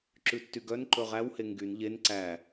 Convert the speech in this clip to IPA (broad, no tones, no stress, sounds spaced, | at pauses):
ǁ ʉ tː y ɡ œ n ǃ ɵ ʁ æ w h e ŋ ɡ y n ʎ e n ǀ æ